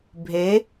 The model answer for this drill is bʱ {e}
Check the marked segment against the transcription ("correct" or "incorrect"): correct